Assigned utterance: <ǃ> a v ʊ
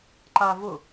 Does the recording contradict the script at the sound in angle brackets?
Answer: no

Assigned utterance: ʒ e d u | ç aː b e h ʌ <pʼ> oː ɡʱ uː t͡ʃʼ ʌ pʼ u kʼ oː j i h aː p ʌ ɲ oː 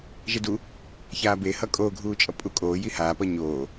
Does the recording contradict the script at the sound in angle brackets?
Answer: yes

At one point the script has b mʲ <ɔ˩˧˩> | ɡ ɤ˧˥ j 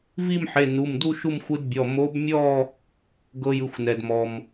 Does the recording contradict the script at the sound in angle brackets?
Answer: yes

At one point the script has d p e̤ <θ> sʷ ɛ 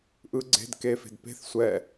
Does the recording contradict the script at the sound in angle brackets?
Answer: no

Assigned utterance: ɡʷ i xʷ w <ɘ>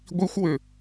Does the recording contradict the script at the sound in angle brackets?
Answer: no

